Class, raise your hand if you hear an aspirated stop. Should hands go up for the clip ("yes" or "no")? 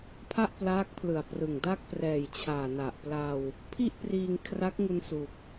yes